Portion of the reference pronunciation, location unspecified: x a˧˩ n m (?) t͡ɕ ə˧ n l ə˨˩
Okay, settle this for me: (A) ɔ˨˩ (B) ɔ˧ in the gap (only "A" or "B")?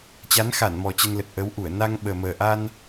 A